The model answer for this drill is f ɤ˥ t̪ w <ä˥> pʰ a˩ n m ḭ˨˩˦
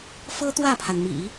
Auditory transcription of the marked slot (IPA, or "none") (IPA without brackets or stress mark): ä˥˩